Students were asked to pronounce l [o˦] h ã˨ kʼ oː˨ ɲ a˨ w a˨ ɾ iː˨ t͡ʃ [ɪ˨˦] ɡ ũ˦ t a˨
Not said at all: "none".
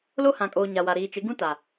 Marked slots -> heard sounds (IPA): o˦, ɪ˨˦

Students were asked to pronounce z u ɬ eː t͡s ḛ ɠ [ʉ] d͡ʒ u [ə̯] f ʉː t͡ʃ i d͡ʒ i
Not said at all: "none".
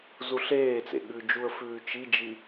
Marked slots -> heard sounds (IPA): ʉ, ə̯

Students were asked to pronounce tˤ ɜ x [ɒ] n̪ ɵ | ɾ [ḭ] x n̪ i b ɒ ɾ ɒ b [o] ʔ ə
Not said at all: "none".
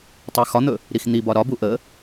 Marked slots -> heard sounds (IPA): ɒ, i, u

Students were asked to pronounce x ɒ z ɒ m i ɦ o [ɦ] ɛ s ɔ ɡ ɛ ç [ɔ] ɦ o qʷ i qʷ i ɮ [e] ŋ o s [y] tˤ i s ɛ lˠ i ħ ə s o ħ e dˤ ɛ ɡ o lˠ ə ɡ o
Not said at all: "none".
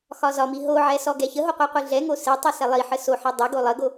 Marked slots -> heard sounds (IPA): ʕ, ə, ɛ, e

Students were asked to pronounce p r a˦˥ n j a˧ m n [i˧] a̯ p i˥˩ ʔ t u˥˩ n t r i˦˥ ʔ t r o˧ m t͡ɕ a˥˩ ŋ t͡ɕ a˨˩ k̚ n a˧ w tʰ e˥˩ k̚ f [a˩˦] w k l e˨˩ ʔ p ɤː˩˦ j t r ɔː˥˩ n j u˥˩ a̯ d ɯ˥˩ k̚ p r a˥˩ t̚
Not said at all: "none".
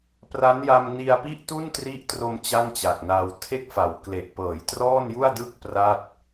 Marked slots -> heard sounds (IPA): i˧, a˩˦

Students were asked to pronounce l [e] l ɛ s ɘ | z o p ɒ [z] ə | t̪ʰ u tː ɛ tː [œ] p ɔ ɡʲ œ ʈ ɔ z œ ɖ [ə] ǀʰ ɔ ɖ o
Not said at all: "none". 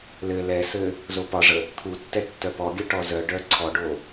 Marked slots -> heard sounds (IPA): ɘ, ʐ, œ, œ

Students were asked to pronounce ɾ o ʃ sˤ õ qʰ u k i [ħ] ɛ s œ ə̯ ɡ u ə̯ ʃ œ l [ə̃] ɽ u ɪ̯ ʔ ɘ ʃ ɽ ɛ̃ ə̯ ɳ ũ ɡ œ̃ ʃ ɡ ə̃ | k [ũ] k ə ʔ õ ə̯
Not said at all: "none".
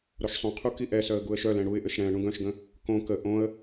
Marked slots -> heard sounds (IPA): ʔ, ɛ̃, õ

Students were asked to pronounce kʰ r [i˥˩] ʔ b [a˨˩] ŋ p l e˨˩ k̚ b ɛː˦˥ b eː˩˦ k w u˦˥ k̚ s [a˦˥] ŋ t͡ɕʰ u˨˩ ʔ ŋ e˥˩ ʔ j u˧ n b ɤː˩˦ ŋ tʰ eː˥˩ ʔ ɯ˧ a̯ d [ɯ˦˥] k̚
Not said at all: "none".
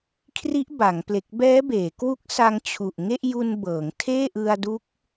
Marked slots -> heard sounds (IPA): i˦˥, a˩˦, a˧, u˦˥

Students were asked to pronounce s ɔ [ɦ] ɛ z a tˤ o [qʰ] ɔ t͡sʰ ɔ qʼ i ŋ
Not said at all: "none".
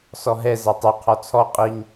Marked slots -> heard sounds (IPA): ɦ, qʰ

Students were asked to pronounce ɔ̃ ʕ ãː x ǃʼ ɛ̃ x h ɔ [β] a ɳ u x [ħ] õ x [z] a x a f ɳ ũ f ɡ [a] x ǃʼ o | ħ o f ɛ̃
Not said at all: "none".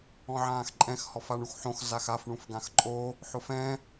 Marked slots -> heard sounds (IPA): f, ħ, z, ã

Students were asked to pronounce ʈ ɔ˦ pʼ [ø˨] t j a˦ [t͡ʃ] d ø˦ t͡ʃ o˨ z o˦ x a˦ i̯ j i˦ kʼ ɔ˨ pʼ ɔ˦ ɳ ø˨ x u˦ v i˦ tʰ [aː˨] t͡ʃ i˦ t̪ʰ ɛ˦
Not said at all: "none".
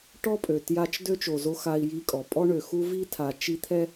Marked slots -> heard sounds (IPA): ø˨, t͡ʃ, a˨

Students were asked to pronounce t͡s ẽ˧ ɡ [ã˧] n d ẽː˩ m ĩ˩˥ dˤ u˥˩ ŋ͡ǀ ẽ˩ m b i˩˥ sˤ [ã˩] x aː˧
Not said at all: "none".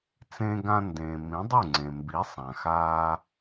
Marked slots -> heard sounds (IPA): ã˧, ã˩

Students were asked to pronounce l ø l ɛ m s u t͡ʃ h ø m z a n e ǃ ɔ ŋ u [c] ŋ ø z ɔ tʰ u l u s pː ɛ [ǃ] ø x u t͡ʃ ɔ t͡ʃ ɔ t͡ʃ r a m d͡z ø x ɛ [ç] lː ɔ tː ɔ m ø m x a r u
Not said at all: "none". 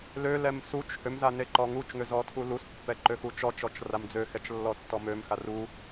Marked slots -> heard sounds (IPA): t͡ʃ, ǃ, t͡ʃ

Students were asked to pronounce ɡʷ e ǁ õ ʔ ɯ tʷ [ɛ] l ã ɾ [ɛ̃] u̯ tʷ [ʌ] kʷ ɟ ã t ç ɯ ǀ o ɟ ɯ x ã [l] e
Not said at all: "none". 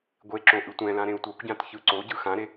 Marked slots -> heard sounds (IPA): ɛ̃, ẽ, ʌ, ɾ

